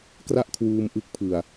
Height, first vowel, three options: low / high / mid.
low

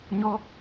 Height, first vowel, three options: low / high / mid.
mid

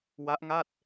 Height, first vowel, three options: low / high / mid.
low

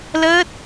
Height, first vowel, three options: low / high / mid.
mid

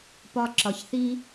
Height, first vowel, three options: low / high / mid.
low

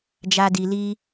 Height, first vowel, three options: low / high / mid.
low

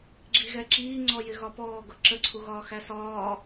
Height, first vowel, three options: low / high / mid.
high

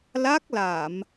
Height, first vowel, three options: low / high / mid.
low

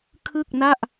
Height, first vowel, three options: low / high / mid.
high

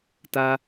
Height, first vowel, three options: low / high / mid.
low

